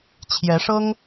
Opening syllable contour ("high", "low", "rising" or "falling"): rising